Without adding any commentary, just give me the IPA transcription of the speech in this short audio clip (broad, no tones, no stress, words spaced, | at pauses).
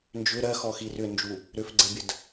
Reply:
nd͡ʒʏ ɾɜxɔxi rʏnd͡ʒu | ɾʏfɡ͡ǀɜbʲəd